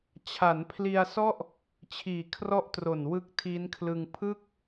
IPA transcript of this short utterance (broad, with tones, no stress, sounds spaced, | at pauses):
t͡ɕʰ a˩˦ n pʰ l i˧ a̯ s ɔ˥˩ ʔ | t͡ɕʰ iː˨˩ kʰ r ɔ˦˥ ʔ t r o˨˩ n w ɯ˦˥ k̚ tʰ i˦˥ n kʰ l ɯ˧ ŋ pʰ ɯ˥˩ k̚